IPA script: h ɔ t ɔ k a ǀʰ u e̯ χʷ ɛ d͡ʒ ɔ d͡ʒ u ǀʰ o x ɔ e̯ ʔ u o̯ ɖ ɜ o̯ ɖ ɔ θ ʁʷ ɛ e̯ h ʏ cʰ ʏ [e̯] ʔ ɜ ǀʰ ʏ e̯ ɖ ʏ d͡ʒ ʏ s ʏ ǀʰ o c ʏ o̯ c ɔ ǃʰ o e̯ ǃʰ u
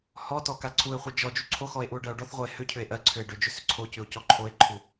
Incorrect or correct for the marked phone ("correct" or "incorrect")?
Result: correct